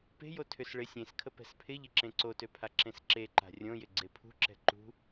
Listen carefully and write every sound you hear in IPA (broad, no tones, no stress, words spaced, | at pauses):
pe̤jo tʰʏs ɭɪ sʲẽskʰə pɛ̤spʰɪʎɪ ǁẽǀotø pʰaǁẽsǁeǃa̤ rʲõjɪ ɡ͡ǀepʰṳǁɛ̤ ǃṳ